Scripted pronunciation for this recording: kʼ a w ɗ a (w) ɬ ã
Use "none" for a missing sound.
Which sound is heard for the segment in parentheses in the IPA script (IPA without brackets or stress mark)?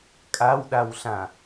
w